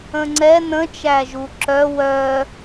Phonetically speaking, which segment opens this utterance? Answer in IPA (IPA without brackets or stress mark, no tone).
ə̃